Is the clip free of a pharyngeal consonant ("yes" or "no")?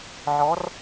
no